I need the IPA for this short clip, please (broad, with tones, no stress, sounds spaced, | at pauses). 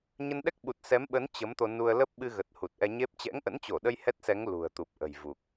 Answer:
ɲ ə˧ n ɗ ɛ˦˥ k̚ ɓ u˨˩ t̚ s ɛ˨˦ m ɓ ə˨˦ n t͡ɕ ə˨˦ m t̪ o˧ n u˧ ə̯ l ə˦˥ p̚ ɓ ɨ˧ ɣ ə˨˩ t̚ h u˨˩ t̚ ʔ ɛ˧ ɲ e˦˥ p̚ t͡ɕ ɛ̰˧˥ ŋ ʔ ə̰˧˥ n t͡ɕ o˧˩ ɗ ə˧ j h ɛ˦˥ t̚ s ɛ˨˦ ŋ l ṳ˨˩ ə̯ t̪ u˨˩ p̚ ʔ ə̤˨˩ j v u˨˩ k̚